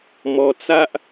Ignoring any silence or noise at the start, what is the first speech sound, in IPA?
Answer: m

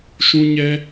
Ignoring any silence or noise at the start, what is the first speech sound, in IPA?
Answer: ʃ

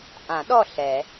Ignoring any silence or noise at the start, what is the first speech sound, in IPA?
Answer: ʔ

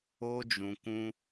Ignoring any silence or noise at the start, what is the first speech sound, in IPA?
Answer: o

